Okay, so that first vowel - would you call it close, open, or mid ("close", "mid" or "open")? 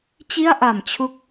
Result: close